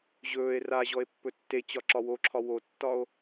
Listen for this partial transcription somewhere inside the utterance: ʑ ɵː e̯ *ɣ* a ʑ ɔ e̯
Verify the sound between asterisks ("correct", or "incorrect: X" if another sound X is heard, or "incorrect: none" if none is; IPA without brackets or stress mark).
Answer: incorrect: r